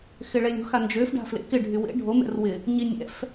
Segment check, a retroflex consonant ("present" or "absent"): present